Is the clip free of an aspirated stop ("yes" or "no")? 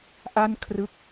no